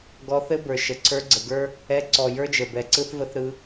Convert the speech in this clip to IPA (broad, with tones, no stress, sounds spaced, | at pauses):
ɡ ɔ˧ θ ɘ˦ b ə˞˨ ʃ ə˨ ǀʰ ə˞˦ ɡ͡ǀ ə˨ ɡ ə˞˦ | ɛ˧ ǀ ɔ˨ j ə˞˦ d͡ʒ ə˨ b ɛ˨ ǀ ɯ˦ θ v ə˦ θ ɾ ɯ˧